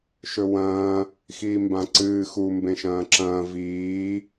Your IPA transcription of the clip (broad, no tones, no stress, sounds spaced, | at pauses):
ʃ ɵ w ɐ̃ː | x iː m b ã ǀ ɨː x u m b ẽ ʃ ɐ̃ː ǁ ɐ̃ː v iː